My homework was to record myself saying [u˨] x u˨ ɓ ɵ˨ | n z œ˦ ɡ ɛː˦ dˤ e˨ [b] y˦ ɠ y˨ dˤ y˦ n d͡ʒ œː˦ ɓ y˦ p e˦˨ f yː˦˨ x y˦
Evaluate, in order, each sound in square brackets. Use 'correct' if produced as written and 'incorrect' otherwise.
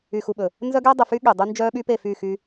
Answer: incorrect: y˨, incorrect: f

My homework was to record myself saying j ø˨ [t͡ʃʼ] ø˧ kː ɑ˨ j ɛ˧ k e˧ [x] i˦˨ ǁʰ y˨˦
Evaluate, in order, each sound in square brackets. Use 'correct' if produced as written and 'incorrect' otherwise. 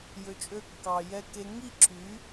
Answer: correct, incorrect: ŋ

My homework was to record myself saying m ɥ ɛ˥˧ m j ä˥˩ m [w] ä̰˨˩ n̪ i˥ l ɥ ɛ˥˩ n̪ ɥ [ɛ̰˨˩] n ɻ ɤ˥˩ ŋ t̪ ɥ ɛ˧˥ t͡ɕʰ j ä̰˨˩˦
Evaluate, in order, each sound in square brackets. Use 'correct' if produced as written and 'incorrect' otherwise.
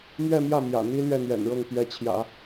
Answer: incorrect: j, correct

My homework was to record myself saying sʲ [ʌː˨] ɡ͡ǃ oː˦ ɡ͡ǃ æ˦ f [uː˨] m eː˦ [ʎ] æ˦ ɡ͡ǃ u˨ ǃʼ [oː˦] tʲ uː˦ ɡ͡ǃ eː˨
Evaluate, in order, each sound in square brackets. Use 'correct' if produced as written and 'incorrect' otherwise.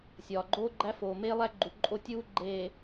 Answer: incorrect: ɒː˨, incorrect: oː˨, incorrect: lˠ, incorrect: o˦

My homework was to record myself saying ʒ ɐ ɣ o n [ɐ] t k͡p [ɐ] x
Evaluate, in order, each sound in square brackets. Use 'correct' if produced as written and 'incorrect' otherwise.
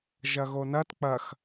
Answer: correct, correct

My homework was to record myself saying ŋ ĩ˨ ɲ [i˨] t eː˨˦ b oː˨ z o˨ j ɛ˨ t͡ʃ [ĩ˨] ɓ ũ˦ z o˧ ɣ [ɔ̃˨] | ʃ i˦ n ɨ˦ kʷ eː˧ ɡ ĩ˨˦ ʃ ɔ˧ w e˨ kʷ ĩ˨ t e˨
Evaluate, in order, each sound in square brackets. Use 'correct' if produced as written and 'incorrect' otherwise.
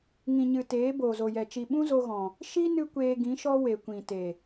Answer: incorrect: ɨ˨, incorrect: i˨, correct

